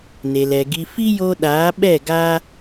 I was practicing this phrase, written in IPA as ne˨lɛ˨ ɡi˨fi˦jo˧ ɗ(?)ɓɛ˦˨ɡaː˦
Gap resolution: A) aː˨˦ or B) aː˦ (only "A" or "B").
A